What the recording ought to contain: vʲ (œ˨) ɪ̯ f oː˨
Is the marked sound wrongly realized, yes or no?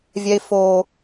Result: yes